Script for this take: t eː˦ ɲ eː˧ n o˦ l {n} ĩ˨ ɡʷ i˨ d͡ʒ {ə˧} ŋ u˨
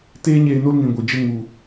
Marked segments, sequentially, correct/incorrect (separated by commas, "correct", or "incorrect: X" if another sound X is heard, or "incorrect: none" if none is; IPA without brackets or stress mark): correct, incorrect: ə˦